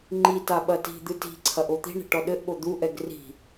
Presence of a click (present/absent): present